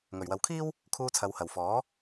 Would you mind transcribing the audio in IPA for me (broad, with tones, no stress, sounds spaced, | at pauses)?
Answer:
ŋ ɵ˨˩ ɥ w ɐ˨ w kʰ iː˥ w | kʰ uː˧ t͡sʰ ɐ˨ w h ɐ˨˩ w f ɔː˨˥